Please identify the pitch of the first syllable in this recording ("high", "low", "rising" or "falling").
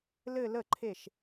falling